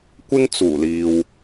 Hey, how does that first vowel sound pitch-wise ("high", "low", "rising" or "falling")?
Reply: high